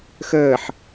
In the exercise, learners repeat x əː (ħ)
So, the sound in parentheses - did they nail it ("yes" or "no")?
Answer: yes